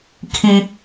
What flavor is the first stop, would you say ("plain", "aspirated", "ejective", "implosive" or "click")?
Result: aspirated